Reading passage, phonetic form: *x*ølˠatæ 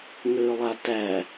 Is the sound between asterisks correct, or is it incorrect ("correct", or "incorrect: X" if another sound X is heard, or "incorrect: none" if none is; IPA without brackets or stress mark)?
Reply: incorrect: ŋ